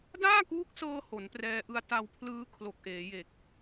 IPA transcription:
daː˥˩kuː˦˥k̚sɤː˧ ho˩˦nprɛː˧ʔɯ˧a̯ ta˧wpʰlɯː˦˥ kʰlo˨˩k̚ʔeː˩˦je˨˩k̚

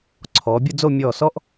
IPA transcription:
ǀʰɔː˩˧bʲə˥˧d͡zo˥˧ mʲɔː˧˩sɔ˥ʔ

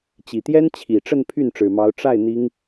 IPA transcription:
t͡ɕi˨˩t̪jɛ˥n t͡ɕʰi˨˩ʈ͡ʂə˥˧n pʰy˥˩nʈ͡ʂɻ̩˨˩mɑ˧˥ʊ̯ ʈ͡ʂa˥˩ɪ̯ n̪i˥ŋ

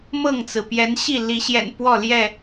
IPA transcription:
mɤ˥˨ŋt͡sɹ̩˩ pjɛ˨˦nɕi˥˨ li˨˦ɕjɛ̰˨˩n pwɔ˥˨ljɛ˥˨

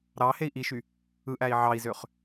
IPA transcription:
ɾɑ hei̯ʔiʃy | ɯʔæi̯ ʕɑi̯zøχ

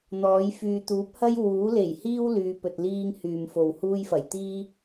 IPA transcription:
n̪ɔː˨˥jfyː˧ t̪uː˨˥p̚hɐ˥j wuː˨˥le˨˩jhiː˥w lyː˨˧pɵ˨t̚liː˥ŋ hyː˨mfo˨whuː˥jfɐ˨˩j t̪iː˥

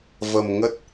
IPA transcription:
və˧mŋə˦˥t̚

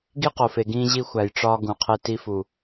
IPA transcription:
ɡi˦qo˨fe˨ɡĩː˧ ʑi˧xʷæ˨j ʈ͡ʂɒː˧ ɡũ˨qʰe˧ ti˧fu˨

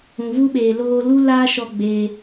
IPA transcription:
ũ˨vu˦ ɓeː˨loː˧ lu˦laː˦ʃɔ˧ ɡ͡beː˧

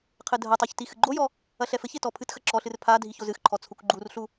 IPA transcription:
qʰɘdʱɐtˤɛç tixɨɡ͡ǃojɔ | ɐɬɛfɘçe tɔpʰɨtxɐ ǁɔɬɨr pʰa dʱiçozɨxǃʰɔ t͡sʰukɡ͡ǃurɬu

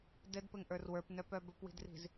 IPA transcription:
dɘdpɘŋʔə˞r wə˞pnœpœ bɵpwi̤dri̤z

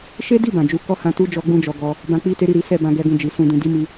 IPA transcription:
ʃe˦di˦˨ bã˨d͡ʒu˧ kɔ˦hã˧tu˦ d͡ʒɔ˦ɡ͡bũ˦d͡ʒɔ˧ ɡɔ˧ | bã˧k͡pi˦te˦ ɾi˦˨ɾi˨˦sɛ˦˨bã˧ ɡɛ˧ɡũ˧ d͡ʒi˨sũ˧dũ˧ di˦mi˧

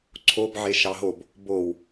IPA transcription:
ǀʰobʕe ʃɑɦob | bow

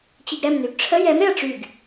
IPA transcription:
t͡ɕiɡɾɛmnyɡ ʈ͡ʂʰə jɛmɾeɐ̯ ʈ͡ʂyɡ

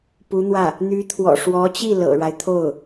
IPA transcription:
pu˧˥n̪wä˥˩ | n̪y˧˥t̪ʰwɔ̰˨˩ ʂwɔ˧˥t͡ɕi˥˩ lɤ̰˨˩ɻa˦ɪ̯t̪ʰo˥˩ʊ̯

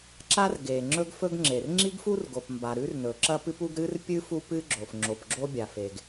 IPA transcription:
ǁa˥rɡe˩ ŋ͡ǁɵ˥ɡfɵ˥ɡŋ͡ǁe˩r ŋ͡ǁi˥ɡfu˥r ɡo˩pmba˩ ɾʉ˥rnɵ˩ ǁɐ˥pɨ˥pu˥ɡ ɾɨ˥r pʲɨ˥ fu˥pɨ˥ɡ͡ǁo˩f ŋ͡ǁo˩pɡ͡ǁo˥ bʲa˩fe˩ɡ

